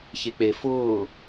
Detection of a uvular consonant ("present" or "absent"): absent